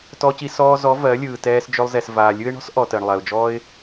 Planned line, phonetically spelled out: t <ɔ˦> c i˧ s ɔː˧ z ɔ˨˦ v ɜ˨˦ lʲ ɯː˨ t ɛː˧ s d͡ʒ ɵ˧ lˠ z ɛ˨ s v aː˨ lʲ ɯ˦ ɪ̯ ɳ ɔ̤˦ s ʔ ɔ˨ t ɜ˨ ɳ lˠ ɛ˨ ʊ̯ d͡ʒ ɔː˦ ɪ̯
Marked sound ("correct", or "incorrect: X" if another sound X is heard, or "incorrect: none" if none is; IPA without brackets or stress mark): incorrect: ɔ˧